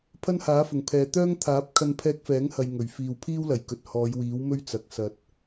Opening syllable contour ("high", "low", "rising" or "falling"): high